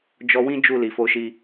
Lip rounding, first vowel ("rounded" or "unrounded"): rounded